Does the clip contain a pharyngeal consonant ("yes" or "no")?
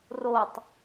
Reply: no